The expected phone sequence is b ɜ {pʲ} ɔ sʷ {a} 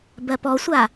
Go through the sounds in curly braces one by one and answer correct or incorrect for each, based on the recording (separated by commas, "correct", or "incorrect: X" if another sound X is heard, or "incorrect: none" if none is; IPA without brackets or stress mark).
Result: incorrect: p, correct